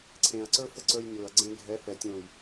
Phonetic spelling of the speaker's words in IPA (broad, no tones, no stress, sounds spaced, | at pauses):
ǀʰ ẽ ɐ̯ ǀ ə˞ f ə ǀ ə˞ j nʲ o ɐ̯ ɡ͡ǀ ẽ ɡʱ ɛ f ɛ tʲ õ j